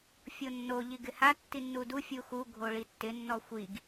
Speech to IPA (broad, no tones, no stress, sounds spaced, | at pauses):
fʲ o nː o ʎ i ɡ ɪ h a tː i nː u d u fʲ u x u ɡʱ o ɭ i tː ɪ nː ɔ xʷ i ɡ